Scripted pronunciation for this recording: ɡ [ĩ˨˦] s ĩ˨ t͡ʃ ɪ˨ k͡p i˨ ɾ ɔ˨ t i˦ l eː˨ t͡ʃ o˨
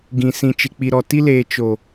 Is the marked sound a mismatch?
yes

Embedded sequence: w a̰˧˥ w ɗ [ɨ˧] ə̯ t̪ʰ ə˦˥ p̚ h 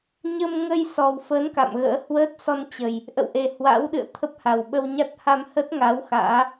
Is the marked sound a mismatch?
yes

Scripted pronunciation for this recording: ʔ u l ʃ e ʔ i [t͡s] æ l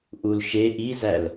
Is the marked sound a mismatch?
yes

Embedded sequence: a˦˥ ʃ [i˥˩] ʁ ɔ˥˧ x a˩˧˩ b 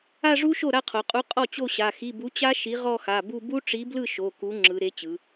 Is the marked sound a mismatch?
yes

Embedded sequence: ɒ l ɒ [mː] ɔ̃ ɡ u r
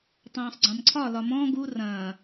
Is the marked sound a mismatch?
yes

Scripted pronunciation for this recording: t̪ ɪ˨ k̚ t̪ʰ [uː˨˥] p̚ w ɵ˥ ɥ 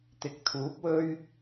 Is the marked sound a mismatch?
no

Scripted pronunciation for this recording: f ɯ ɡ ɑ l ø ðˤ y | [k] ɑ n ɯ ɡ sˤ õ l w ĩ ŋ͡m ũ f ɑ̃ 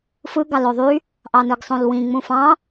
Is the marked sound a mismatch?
yes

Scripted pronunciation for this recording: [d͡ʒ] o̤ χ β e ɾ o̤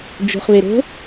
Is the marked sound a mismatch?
no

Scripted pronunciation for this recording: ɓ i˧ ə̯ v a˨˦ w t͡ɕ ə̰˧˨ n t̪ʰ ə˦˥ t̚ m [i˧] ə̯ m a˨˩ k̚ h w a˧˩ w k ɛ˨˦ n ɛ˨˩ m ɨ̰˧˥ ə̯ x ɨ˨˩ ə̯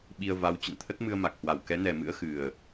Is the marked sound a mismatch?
yes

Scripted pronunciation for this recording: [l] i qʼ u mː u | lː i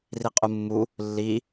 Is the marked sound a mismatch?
yes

